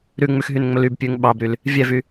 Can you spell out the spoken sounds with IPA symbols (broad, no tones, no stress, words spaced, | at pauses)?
ɾʉŋ͡mʉxɦynŋ͡mɵl ybpʲʉŋ ɓɑbɾyl | vʲɛvy